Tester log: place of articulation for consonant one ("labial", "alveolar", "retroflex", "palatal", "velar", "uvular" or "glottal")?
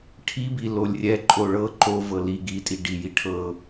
retroflex